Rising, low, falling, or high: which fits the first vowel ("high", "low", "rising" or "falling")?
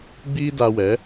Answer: high